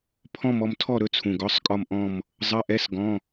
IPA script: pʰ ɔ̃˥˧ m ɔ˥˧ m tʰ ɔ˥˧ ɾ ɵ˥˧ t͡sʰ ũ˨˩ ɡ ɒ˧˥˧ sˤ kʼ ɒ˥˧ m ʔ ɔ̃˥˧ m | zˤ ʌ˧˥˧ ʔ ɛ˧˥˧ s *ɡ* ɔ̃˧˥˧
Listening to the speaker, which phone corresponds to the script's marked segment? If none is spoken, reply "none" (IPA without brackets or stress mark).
ɡ